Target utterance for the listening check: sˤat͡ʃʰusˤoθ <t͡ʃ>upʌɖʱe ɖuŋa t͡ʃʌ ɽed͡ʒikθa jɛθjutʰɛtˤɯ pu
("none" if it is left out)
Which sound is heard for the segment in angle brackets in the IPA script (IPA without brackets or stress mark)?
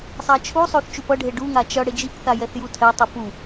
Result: t͡ʃ